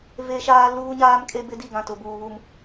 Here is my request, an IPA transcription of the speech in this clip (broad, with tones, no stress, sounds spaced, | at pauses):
v e˦ ʃ aː˦ l uː˦ ɲ aː˦ m kʼ e˦ b ɪ˦ d i˦˨ ɡ ã˦˨ t ʊ˨ b uː˨ β u˨ m